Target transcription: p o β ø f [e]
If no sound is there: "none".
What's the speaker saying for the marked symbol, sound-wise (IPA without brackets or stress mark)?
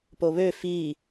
i